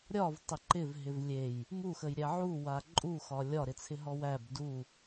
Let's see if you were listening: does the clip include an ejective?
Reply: yes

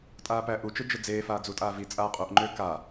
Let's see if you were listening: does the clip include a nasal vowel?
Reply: no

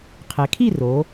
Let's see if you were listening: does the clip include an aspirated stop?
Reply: yes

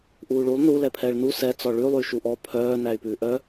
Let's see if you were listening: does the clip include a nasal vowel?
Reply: no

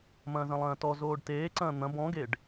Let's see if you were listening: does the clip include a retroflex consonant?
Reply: yes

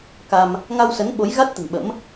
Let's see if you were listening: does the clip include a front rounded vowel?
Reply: no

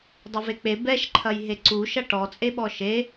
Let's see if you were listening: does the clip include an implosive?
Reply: yes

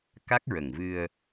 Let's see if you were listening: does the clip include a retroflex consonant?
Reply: no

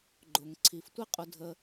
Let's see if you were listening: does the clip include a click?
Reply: yes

